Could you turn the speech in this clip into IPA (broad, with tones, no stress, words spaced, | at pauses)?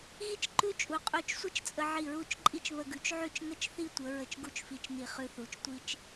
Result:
ɣi˥t͡ʃǃʉ˥˧t͡ʃʼu˩˧ qʼu˧˩t͡ʃsʷə˥t͡ʃt͡sʼə˧ ʕi˧˩ɹu˥˧t͡ʃǃʼi˥t͡ʃ βə˧ɡʉ˩˧t͡ʃʕʉ˥˧t͡ʃ ŋə˥t͡ʃθi˥˧tʷə˩˧ ɹə˧˩t͡ʃɡu˥˧t͡ʃfi˧˩t͡ʃni˧˩ χʉ˧θu˩˧t͡ʃ tʷi˥t͡ʃ